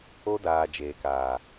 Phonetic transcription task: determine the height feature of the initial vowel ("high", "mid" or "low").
mid